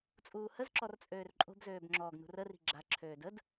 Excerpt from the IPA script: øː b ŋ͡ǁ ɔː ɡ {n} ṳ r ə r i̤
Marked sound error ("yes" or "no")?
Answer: no